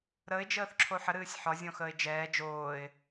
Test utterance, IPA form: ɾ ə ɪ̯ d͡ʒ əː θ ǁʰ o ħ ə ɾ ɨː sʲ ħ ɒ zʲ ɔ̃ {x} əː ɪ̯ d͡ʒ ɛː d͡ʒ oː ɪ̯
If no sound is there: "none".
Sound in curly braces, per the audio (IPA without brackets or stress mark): x